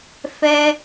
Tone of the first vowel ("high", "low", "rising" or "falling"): high